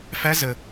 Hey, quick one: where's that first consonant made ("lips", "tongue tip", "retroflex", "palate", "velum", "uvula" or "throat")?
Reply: lips